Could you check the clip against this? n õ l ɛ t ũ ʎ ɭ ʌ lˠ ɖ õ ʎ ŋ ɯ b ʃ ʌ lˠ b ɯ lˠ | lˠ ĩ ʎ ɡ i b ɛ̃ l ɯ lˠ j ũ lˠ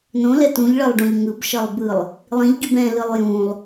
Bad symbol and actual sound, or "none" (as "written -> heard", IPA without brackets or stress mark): none